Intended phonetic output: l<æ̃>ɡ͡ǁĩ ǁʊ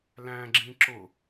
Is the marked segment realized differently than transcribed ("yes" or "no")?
no